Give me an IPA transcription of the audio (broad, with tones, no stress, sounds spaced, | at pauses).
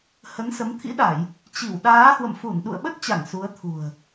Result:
h ə˨˦ n s ə˨˦ m t̪ʰ ḭ˧˥ ɗ a˧˩˨ j | t͡ɕ i˧˩ w ɗ aː˨˦ h w ə̰˧˨ m f u˧˩ n ɗ ṵ˧˨ ə̯ ɓ ə˦˥ t̚ t͡ɕ a˧˩ ŋ s u˨˦ ə̯ t̪ʰ ṳ˨˩ ə̯